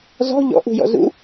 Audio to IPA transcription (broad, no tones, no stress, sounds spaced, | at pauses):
z ɔ̤ ʎ ɔ̰ ʔ ṳ j ɔ̰ z ṵ